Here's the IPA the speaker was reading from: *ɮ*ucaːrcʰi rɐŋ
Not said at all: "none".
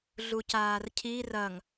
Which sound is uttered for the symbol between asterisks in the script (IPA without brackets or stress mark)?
ɮ